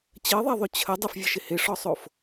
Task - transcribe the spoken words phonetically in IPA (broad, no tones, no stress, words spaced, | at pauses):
t͡ɕəɪ̯ðˤɛðˤʉ t͡ɕʰə dˤɪfvʲəʃɪ hɪʂɔsˤof